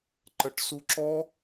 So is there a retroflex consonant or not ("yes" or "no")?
yes